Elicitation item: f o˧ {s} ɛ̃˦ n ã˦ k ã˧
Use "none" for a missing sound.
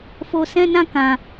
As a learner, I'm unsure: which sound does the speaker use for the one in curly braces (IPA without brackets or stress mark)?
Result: s